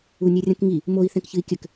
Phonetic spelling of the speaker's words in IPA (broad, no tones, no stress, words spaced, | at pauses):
unʲerʲɐ̃kŋi | moi̯ θɛ̃kçɨi̯kʲɘk